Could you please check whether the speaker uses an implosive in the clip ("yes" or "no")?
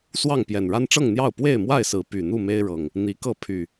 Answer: no